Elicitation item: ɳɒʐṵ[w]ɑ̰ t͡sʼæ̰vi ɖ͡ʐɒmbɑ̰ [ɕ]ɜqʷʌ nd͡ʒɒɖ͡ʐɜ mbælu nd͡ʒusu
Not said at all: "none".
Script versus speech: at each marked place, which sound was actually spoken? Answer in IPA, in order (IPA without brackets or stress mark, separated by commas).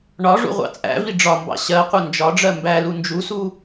ʁʷ, ɕ